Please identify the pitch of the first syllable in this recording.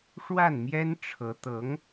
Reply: falling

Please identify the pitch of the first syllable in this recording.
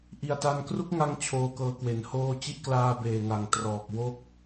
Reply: low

